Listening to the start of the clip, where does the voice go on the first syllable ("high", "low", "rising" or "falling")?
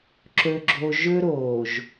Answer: high